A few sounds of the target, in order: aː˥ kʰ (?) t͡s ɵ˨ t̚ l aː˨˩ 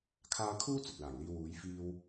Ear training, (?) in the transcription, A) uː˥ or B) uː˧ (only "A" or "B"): A